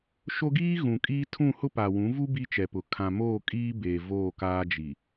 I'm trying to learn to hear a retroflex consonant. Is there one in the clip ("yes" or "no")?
no